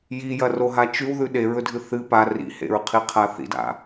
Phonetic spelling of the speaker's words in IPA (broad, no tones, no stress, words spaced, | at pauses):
jijɐroɦa t͡ʃʉwðʉ ɗeɹɵdʱɨ θɨ pa rḭhḛɹqʰiqʰa θḭda̰